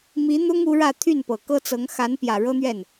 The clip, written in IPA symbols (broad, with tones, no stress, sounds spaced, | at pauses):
m i˧˥ n̪ ʊ˥ ŋ u˧˥ ɻ ä˥˧ t̪ʰ y˥˩ n p ɤ˨˩ k ɤ˥ t͡s ɤ˧˥ ŋ x a˧˥ n p j ä˨˩ ɻ ɤ˥ n̪ ɥ ɛ˥˩ n